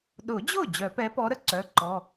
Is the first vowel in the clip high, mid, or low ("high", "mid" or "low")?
high